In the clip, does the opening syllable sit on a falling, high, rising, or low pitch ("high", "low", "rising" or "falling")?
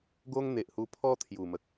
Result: high